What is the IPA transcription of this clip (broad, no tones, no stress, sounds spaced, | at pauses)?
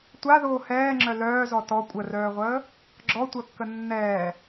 tʷ a ð oː h ɛː ŋ͡ǁ œ l œː z ɔ t ɔ kʷʼ ə r œː ʁʷ əː | ɡ͡ǁ ɔ tʷ œ kː ə nː ɛː